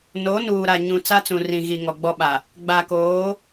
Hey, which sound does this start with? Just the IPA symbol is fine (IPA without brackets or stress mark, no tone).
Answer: n